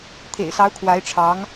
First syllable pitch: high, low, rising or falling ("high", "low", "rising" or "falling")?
low